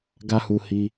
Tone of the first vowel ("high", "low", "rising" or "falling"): high